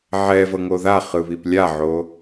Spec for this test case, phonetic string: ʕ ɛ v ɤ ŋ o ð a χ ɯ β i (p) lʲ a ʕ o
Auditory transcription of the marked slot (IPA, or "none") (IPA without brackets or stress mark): p